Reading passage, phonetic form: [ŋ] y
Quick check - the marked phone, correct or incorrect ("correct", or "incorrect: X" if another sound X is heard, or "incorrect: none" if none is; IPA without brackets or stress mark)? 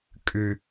incorrect: kʼ